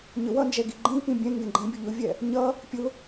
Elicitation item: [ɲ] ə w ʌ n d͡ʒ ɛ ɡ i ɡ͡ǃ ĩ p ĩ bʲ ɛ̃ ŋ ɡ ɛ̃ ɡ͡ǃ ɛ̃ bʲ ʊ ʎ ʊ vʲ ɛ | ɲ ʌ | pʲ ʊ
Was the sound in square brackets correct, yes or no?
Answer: yes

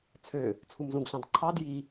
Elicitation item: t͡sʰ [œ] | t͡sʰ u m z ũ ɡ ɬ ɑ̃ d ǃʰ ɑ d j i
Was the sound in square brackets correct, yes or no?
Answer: no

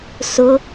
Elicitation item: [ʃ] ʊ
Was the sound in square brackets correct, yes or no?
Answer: no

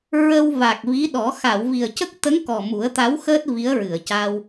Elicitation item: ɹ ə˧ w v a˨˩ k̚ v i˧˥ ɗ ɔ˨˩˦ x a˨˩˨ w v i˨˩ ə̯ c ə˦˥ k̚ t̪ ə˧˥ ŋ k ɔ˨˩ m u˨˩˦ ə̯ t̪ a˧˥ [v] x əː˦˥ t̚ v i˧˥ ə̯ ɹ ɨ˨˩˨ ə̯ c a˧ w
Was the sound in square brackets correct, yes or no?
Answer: no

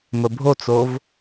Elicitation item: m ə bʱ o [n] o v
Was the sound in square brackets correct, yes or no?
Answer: no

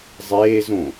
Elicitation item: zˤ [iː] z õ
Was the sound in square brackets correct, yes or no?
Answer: no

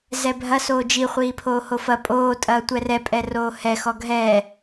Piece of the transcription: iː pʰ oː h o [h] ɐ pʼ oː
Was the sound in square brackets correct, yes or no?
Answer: no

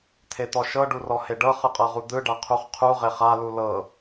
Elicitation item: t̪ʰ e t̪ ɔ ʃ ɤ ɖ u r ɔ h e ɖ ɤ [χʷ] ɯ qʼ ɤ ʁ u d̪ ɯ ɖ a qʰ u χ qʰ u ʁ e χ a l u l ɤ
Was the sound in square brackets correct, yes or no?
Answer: no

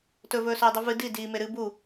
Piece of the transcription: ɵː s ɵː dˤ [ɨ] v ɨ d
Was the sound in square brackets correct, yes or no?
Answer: yes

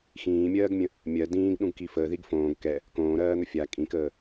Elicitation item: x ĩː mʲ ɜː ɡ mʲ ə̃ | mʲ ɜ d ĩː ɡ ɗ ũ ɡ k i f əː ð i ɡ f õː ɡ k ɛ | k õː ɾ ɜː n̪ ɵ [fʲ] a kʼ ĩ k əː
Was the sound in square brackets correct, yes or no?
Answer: yes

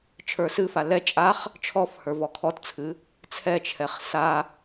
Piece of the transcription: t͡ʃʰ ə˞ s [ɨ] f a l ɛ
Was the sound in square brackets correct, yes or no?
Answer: yes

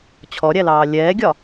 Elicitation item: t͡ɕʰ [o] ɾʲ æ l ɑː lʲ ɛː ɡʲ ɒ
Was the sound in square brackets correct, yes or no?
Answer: no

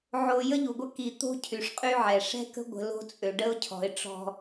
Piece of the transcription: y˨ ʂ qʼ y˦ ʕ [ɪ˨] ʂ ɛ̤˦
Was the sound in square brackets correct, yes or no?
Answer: no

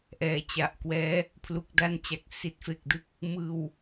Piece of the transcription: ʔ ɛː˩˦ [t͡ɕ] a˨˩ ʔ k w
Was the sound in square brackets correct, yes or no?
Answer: yes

